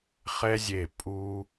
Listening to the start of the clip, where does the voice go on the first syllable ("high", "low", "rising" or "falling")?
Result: high